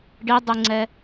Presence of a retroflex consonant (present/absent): present